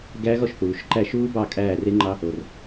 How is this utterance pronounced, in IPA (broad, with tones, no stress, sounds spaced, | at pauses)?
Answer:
ɡ æ˦˥ ɣ ɔ˦˨ ʃ θ uː˩ ʃ ǃ æ˦˨ ʃ uː˦˥ b ɑ˦˨ kʼ æː˦˨ r e˦˥ ŋ͡ǃ ɑ˦˥ | o˩ r